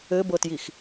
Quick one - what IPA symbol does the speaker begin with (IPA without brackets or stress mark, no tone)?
ɘ